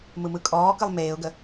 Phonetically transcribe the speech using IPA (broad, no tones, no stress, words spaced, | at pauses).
mɯmɯkʼɔːkɯlˠ meːʊ̯ɡə